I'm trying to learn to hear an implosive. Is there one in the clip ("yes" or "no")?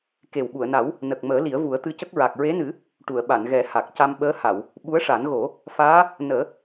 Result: yes